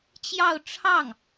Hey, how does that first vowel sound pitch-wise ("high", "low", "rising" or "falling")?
falling